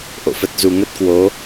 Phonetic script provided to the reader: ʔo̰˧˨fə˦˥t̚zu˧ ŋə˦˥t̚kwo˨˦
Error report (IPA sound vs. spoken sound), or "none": none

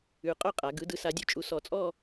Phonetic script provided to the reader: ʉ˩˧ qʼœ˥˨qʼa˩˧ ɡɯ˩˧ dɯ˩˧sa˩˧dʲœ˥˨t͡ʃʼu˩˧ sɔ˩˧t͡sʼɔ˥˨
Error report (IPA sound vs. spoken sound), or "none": none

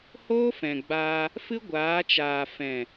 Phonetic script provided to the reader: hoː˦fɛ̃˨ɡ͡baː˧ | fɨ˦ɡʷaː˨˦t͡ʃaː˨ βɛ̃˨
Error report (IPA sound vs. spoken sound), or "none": β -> f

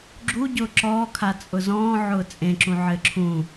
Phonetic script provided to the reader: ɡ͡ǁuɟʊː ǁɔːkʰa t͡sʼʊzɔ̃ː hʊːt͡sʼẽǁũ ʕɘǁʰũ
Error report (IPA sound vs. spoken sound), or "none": h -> ʕ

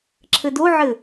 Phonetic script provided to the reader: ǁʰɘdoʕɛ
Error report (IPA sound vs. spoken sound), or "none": ɛ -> ɘ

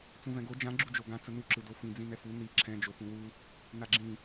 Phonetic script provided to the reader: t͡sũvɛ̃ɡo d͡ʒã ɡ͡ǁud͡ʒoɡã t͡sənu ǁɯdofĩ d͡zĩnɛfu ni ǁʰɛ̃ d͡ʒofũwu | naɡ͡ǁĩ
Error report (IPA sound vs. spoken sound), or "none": none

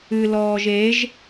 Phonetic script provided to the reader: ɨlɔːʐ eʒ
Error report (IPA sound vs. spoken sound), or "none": ʐ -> ʒ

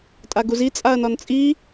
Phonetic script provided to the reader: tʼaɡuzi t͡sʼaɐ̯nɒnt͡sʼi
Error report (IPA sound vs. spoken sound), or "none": none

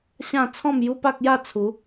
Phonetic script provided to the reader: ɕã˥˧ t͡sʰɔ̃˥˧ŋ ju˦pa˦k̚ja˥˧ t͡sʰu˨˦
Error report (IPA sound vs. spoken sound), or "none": ŋ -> m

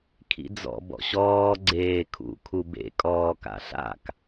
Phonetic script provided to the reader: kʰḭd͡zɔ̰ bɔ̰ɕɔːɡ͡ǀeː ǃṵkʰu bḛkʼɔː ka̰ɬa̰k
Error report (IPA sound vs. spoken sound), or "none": ǃ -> kʰ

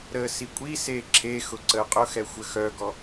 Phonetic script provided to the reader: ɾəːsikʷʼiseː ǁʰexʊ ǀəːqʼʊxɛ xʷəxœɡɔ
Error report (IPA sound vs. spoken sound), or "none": none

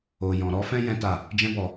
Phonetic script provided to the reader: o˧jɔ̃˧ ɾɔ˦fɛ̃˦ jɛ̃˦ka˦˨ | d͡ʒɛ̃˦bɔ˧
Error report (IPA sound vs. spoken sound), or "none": k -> t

